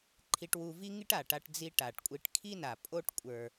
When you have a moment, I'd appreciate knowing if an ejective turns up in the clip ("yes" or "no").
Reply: yes